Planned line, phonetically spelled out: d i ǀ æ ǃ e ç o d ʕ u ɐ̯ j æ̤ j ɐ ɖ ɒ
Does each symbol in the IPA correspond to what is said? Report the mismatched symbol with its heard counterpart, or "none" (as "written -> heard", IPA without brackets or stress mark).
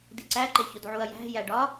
ɐ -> æ